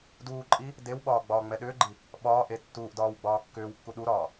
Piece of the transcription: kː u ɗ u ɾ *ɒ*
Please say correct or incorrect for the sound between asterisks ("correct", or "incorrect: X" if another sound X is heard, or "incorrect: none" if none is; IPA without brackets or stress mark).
incorrect: ɒː